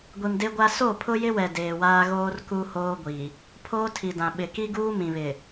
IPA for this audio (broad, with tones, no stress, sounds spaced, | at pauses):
ɡʷ i˨ m d e˦ ɡʷ a˦ s o˦˨ pʰ ʊ˦ j ɪ˦ w ɛ˨ d eː˨ w aː˦ ɣ oː˦ r k u˦ h oː˦ ɡʷ i˨ | pʰ oː˦ tʰ i˨ d ã˨ ɓ ɪ˨ k i˦ ɡ uː˦ m ĩ˨ β ɪ˨